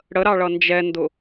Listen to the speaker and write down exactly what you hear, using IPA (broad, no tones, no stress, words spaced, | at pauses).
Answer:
ɽəɾɑ ɭʌnd͡ʒɛndʊ